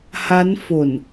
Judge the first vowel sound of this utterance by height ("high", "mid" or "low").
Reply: low